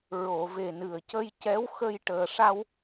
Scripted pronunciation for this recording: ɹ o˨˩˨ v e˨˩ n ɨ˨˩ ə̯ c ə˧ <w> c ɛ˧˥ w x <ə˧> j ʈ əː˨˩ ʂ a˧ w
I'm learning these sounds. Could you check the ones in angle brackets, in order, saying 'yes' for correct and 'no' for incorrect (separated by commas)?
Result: no, yes